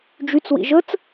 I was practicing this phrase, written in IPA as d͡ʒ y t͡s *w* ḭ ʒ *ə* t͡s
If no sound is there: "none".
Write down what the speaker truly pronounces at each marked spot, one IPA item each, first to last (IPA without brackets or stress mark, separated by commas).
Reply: w, ə